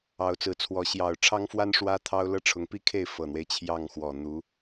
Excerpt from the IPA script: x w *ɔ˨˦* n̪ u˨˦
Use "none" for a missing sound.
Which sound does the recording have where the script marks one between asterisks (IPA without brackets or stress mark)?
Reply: ɔ˨˩